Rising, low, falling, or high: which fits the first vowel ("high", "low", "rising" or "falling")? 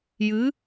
rising